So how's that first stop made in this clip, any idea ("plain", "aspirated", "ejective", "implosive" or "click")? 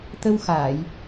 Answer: plain